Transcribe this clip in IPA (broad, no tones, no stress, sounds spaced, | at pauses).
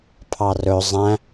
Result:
pʰ ɑ r ɵ zˤ æ̃